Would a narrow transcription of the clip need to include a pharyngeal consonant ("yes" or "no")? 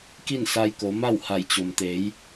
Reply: no